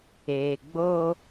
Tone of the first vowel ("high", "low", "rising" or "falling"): low